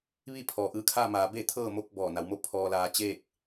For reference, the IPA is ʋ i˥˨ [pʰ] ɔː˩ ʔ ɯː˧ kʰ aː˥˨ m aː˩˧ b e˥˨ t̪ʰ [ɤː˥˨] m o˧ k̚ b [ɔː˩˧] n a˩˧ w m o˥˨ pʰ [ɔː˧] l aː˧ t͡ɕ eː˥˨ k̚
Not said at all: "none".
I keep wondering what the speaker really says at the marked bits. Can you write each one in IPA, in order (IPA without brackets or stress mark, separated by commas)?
pʰ, ɤː˥˨, ɔː˧˩, ɔː˧